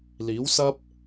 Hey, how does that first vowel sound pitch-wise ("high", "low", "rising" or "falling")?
rising